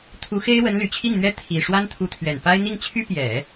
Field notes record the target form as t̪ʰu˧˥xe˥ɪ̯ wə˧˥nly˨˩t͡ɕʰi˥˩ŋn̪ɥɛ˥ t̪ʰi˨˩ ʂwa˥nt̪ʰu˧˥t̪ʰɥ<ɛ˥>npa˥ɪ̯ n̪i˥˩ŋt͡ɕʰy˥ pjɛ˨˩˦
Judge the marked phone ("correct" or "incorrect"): incorrect